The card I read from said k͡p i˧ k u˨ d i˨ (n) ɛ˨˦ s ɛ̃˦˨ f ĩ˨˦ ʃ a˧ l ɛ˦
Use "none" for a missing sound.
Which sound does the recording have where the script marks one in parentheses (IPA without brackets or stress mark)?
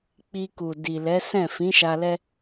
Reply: l